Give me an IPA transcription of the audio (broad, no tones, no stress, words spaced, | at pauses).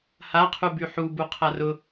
haqʰu byħubu qʰarʊ